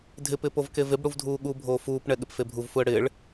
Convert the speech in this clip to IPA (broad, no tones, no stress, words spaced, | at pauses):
dʱɪpɪːp ovkevɪb ɽuvdʱuːɠubʱoː fuːpɳɛ ɠɪpfebʱuvfuə̯ ɽɪːɭ